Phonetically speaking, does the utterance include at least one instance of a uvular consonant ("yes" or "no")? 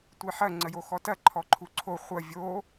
yes